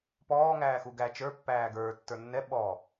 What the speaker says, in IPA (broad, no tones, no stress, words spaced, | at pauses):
pɔː ŋæːxuɡæ t͡ʃə˞ pːæːɡə˞ tːə˞nːɛ ɓɔ